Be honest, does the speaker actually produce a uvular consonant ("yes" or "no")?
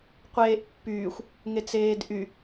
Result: yes